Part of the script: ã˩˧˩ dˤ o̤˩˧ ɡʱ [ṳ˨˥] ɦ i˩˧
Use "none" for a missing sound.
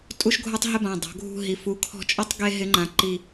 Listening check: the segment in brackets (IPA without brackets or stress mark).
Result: ṳ˦˨